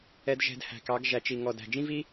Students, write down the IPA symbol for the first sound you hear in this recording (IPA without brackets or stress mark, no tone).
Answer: ɛ